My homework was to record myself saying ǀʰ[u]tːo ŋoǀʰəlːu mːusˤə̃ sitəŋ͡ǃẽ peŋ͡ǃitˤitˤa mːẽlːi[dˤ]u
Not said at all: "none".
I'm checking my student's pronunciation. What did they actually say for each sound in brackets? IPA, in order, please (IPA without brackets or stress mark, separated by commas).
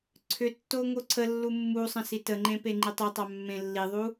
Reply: ʏ, ðˤ